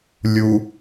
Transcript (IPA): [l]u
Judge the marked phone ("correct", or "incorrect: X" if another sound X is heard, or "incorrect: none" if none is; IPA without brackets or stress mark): incorrect: lʲ